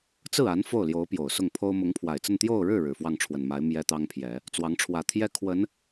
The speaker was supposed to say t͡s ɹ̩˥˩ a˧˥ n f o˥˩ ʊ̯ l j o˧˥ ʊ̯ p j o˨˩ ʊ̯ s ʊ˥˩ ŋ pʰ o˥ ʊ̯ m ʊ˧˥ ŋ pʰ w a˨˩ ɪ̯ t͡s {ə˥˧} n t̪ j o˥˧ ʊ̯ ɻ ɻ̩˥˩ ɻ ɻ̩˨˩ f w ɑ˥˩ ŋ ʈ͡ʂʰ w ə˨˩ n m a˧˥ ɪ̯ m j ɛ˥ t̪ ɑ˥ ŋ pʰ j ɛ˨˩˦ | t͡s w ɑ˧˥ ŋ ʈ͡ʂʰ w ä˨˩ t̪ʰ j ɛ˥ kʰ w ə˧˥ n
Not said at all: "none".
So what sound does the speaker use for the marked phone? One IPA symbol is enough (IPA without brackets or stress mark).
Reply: ə˥˧